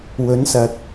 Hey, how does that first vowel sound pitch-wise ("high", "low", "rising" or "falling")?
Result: rising